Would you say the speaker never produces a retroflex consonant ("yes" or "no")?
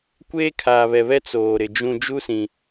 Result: yes